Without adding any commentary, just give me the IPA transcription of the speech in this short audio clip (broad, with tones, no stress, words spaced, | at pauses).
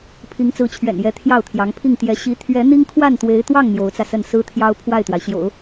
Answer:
pʰi˧˥ŋt͡sɹ̩˧˥t͡ɕʰɥɛ̰˨˩njɛ˧˥ t̪ʰjɑ˥˩ʊ̯t̪ʰjɑ˧˥ŋpʰi˥˩ŋ t̪jɛ˧˥ ɕi˧˥t̪ʰɥɛ˧˥ n̪i˥ŋ kʰwa˥˩nt̪we˧˥ɪ̯t̪wɑ˥˩ŋ n̪jo˧˥ʊ̯t͡sä˧sə˥˩n sɹ̩˥t̪ʰjɑ˥ʊ̯ pʰwa˥˩ɪ̯t̪wa˩ɪ̯ ɕjo̰˨˩˦ʊ̯